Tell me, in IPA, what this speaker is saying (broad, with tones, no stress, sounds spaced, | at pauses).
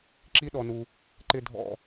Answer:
ǁ i˥ ɗ ɔ˧ n u˧ | ǃ ɪ˥˧ dʱ ɔ̰˥˧